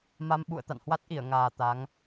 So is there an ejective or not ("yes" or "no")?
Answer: no